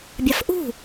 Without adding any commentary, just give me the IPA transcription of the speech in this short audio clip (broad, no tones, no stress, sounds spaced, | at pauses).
bʲ a f ʔ ṳ